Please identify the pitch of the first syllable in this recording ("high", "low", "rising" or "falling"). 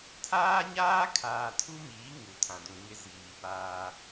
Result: high